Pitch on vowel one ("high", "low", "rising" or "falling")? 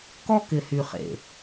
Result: high